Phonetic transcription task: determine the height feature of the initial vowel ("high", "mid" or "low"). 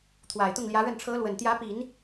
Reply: low